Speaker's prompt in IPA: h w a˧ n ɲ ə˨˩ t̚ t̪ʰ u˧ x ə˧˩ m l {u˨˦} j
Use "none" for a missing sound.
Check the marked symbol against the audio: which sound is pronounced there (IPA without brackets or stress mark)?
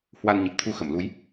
u˨˦